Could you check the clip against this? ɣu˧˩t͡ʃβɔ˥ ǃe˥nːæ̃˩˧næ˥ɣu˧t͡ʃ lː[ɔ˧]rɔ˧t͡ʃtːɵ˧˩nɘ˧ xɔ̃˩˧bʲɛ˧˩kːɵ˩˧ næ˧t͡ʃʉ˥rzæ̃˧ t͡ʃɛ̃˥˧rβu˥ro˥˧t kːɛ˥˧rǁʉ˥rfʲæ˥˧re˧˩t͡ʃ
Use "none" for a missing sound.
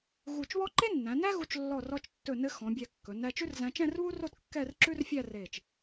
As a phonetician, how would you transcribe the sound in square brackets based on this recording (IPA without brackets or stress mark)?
ɔ˧˩